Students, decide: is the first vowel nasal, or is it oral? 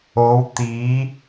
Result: oral